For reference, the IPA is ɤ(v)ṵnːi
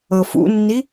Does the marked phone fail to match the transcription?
yes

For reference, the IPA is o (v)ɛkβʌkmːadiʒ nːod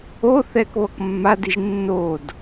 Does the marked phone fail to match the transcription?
yes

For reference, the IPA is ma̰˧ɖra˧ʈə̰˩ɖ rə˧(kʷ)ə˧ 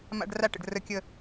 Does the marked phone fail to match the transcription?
yes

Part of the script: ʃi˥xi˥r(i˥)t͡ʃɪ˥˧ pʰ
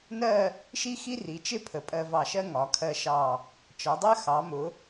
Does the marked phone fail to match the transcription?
yes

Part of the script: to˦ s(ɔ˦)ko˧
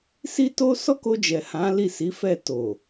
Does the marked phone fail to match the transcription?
no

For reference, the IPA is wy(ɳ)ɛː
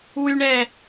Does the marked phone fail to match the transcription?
no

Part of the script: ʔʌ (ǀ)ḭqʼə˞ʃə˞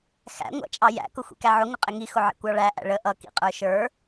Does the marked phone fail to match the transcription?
yes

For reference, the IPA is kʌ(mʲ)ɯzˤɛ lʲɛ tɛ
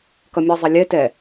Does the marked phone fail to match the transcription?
no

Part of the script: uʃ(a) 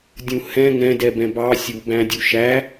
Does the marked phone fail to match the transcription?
yes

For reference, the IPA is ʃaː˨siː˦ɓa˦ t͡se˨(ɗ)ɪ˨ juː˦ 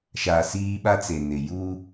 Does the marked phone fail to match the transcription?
yes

